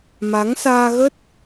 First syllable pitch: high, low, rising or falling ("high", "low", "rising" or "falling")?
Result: rising